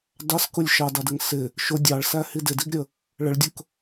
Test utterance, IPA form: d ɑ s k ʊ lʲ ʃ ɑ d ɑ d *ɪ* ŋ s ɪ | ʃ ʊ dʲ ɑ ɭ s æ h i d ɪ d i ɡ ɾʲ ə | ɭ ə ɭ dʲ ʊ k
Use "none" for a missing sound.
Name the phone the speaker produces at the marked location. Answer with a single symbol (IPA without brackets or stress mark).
ɪ